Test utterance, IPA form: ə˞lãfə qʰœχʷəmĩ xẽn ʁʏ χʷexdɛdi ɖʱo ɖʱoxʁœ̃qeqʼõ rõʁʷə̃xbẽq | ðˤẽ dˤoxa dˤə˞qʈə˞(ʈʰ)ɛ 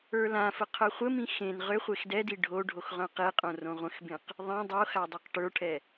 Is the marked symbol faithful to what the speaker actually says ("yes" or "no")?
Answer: yes